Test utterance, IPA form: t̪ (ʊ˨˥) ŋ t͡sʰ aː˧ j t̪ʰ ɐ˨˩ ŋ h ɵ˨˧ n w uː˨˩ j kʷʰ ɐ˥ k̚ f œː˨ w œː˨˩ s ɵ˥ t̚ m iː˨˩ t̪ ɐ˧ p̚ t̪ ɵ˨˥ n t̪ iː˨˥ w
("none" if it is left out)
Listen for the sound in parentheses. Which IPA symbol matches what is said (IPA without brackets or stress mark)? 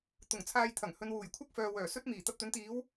ʊ˨˩